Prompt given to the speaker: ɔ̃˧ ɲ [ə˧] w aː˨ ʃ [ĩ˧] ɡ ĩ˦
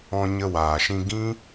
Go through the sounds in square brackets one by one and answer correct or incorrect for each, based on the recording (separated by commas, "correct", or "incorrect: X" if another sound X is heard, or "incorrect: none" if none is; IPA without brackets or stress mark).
correct, correct